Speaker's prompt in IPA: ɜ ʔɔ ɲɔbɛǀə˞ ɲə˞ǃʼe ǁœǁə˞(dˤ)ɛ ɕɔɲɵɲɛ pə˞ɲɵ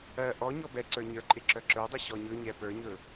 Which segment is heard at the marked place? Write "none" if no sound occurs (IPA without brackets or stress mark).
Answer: dˤ